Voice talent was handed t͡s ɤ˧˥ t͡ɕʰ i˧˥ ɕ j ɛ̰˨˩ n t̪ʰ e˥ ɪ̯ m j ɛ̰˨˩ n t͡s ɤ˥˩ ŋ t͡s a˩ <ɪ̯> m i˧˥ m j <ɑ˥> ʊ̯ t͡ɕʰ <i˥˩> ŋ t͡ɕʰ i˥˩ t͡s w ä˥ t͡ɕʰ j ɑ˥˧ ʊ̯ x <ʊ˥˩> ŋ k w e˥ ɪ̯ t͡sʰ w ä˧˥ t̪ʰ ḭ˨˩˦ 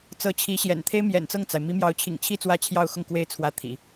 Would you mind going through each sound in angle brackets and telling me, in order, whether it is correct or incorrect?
correct, incorrect: ɑ˧˥, incorrect: ḭ˨˩, correct

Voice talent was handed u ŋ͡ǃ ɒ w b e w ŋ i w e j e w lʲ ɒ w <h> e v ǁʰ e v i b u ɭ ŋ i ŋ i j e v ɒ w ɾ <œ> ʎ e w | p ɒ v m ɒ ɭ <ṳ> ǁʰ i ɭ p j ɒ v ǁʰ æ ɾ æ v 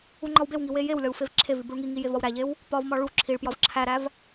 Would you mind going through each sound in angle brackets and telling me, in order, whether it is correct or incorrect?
incorrect: f, incorrect: æ, incorrect: u

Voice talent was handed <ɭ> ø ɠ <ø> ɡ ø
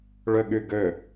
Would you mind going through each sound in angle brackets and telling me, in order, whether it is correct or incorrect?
correct, incorrect: y

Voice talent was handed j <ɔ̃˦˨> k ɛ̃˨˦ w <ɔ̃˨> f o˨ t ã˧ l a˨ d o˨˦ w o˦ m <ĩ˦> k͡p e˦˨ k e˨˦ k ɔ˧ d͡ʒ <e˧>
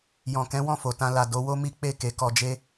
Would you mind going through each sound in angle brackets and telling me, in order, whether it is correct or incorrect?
incorrect: ɔ̃˨, incorrect: ɔ̃˦˨, incorrect: i˦, incorrect: e˦

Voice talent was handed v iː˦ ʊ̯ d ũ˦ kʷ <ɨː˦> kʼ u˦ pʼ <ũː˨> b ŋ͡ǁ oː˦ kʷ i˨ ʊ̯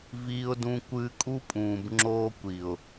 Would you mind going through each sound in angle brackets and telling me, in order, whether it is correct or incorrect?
correct, correct

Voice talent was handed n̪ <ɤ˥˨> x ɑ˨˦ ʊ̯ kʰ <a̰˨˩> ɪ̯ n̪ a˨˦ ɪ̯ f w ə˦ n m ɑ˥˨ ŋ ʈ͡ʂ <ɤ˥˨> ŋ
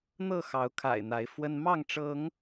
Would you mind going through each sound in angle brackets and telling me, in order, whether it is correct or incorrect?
correct, correct, incorrect: ɤ˨˦

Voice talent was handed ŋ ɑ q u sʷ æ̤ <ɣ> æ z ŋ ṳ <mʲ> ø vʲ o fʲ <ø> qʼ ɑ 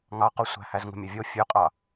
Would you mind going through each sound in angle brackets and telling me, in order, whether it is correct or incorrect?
incorrect: h, correct, correct

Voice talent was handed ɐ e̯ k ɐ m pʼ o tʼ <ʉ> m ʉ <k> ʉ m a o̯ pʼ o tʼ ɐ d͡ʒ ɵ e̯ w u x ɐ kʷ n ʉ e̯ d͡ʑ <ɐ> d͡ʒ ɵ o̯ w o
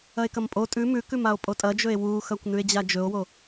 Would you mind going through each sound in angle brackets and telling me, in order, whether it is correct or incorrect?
correct, correct, incorrect: a

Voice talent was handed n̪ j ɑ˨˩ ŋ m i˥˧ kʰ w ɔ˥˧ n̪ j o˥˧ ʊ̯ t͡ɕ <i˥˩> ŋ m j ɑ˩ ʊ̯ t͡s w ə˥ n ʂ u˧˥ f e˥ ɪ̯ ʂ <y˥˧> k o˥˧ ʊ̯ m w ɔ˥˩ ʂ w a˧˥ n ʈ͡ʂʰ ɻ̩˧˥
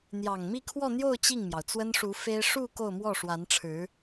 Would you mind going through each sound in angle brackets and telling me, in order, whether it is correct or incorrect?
correct, incorrect: u˥˧

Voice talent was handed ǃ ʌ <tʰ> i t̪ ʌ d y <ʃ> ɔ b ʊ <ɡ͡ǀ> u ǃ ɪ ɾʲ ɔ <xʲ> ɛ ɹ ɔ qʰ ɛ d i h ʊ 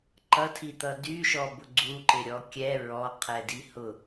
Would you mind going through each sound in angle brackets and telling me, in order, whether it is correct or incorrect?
correct, correct, correct, incorrect: kʲ

